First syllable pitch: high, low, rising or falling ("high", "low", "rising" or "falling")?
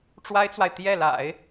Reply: high